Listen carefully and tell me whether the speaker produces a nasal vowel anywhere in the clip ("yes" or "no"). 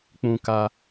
yes